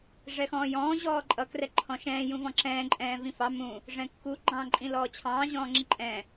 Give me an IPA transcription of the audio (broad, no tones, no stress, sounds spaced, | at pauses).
ʐ ɛ x ɔ̃ː j ɔ̃ː ʑ ɔː ǃʼ ʌ k r ɛ ǃʰ ɔ̃ ʃ ɛ̃ː j ũ v ɔ̃ ǁ ɛ̃ː ǃʼ ɛ̃ː v ĩ f ɑ m ũ | ʐ ɛ̃ kː u ɡ͡ǃ ɑ̃ː ǃʼ ĩ l ɔː t͡ɕʰ ɑ̃ː ʑ ɔ̃ː ŋ͡ǁ i ǃʼ ɛ̃ː